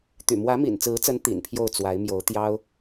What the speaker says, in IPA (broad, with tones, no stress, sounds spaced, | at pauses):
t̪ y̰˨˩ m w ä˧˥ m ḭ˨˩ n t͡s ɹ̩˧˥ t͡s ə˧˥ n t̪ ḭ˨˩ n pʰ j o˥˩ ʊ̯ t͡s w a˧˥ ɪ̯ m j o˧˥ ʊ̯ t̪ j ɑ˥ ʊ̯